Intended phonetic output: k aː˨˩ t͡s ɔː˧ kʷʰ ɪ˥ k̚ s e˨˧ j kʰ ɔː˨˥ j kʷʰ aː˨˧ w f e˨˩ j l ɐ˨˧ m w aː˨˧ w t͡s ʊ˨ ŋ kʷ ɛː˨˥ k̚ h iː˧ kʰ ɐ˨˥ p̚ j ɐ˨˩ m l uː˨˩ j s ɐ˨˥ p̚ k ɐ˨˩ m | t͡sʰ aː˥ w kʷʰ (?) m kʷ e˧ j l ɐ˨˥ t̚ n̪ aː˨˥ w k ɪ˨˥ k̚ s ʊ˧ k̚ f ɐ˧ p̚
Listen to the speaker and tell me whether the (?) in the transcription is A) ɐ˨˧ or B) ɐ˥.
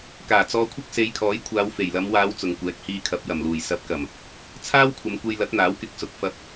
A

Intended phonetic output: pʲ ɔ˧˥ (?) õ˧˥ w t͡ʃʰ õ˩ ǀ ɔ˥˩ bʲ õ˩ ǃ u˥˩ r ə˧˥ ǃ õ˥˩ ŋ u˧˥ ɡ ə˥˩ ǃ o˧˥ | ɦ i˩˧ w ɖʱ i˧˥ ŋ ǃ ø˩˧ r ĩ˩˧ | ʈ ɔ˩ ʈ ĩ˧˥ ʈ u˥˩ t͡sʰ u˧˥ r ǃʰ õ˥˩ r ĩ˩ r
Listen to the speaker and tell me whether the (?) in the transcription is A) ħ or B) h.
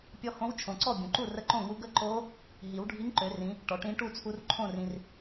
B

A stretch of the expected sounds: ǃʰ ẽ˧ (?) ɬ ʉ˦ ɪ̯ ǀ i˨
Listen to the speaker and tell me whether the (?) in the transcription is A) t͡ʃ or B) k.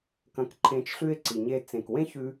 A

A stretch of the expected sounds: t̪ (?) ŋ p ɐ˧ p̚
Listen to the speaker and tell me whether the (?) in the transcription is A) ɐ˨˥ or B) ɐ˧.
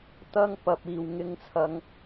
B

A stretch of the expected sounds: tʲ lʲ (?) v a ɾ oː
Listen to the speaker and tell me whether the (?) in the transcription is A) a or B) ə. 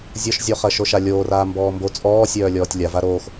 A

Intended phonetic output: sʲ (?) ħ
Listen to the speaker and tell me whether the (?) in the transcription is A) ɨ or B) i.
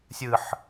A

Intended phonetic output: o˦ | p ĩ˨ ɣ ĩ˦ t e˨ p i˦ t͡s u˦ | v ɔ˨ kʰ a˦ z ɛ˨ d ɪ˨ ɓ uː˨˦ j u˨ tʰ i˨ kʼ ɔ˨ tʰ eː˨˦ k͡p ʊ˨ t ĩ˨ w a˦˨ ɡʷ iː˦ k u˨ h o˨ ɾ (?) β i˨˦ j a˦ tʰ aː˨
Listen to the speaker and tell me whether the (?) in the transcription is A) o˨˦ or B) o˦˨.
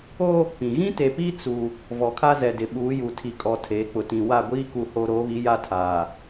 A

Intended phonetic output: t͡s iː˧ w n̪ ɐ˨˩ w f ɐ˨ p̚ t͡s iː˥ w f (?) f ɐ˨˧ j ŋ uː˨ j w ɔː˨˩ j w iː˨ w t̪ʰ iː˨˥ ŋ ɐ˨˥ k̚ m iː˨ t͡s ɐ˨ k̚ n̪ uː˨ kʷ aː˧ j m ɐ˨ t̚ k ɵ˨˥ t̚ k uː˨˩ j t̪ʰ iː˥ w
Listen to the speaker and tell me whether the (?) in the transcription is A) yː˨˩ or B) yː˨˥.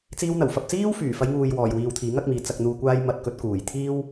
A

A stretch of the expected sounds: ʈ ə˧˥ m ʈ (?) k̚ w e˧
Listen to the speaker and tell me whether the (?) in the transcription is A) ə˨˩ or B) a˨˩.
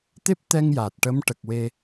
A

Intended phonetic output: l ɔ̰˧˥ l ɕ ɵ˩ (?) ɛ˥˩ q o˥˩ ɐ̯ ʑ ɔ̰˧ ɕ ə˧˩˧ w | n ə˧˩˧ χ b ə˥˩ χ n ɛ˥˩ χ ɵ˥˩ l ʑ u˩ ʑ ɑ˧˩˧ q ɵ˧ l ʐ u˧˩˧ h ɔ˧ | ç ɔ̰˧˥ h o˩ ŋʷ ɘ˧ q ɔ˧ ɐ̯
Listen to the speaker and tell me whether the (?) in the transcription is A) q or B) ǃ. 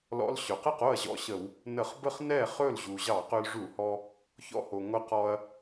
A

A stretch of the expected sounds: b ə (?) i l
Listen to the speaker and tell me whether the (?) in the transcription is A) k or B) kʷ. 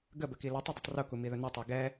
A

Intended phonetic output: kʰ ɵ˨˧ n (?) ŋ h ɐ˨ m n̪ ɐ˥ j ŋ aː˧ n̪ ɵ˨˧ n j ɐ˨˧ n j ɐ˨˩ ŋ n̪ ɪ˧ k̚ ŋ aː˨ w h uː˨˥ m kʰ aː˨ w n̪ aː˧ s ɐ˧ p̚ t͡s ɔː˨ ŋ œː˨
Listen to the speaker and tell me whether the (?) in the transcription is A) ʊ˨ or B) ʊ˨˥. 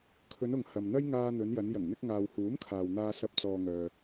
A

